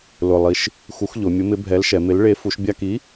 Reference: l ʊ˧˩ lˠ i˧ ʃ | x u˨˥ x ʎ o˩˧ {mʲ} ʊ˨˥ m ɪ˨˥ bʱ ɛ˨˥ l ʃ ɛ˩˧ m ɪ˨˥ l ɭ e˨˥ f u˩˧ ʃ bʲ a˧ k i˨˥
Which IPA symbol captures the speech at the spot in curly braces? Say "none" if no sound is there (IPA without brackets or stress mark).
mʲ